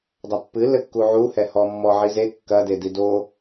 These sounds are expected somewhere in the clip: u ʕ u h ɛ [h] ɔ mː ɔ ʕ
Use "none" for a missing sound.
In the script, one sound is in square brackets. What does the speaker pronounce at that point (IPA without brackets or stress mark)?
h